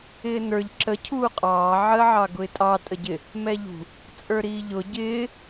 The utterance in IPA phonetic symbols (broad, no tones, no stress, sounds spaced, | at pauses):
ɪː n ə˞ ʎ ǁ ə cʰ uː qʼ ɑː ʕ əː ʕ ɑ ɡ ʊ ɪ̯ tʼ ɑ tʼ ə ɟ ɪ | m ɛ ʎ ṳ | t͡sʼ ə˞ ɾ iː ʎ ʊ ɟ ɪː